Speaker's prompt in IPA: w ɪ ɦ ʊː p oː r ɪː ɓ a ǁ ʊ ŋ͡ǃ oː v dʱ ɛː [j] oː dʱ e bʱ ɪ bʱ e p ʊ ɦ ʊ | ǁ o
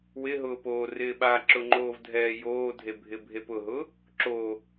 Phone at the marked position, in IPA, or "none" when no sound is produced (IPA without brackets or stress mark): j